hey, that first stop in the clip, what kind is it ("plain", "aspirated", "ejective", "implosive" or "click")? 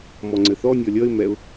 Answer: click